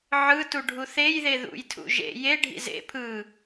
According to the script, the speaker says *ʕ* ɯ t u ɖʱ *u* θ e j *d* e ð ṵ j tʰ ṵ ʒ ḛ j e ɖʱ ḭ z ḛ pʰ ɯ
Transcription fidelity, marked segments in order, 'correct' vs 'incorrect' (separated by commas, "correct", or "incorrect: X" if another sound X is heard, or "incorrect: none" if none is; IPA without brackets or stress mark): correct, correct, incorrect: ð